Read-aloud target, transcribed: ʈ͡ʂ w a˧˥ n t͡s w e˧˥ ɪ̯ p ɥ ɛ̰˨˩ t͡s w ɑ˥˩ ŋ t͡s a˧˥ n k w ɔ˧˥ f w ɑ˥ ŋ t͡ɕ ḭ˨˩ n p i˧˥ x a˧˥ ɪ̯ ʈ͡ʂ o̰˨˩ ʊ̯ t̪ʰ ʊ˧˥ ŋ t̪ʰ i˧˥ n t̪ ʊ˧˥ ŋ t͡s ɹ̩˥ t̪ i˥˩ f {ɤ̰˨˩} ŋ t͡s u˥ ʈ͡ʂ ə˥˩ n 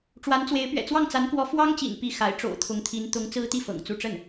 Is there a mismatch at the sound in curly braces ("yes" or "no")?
no